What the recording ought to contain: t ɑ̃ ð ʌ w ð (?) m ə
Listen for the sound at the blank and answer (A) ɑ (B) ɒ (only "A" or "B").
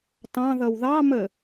A